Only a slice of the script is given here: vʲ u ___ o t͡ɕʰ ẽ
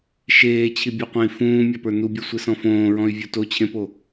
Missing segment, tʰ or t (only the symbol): t